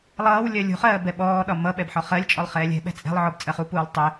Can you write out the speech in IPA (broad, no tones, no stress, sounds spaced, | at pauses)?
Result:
lˠ ʌː w lʲ ɜ lʲ ṳ χ ɜː b ɛ ɓ ɔː ɗ ɒ m ʌ ɓ ɛ b ħ ɒ χ ɜ lʲ t͡ʃʼ ɔ lˠ χ ɛː lʲ ɛ̤ ɓ ɛ̤ t͡sʼ ɛ̤ lˠ ʕ ɔ b t͡sʼ ɜ χ u p uː lˠ tˤ ɪ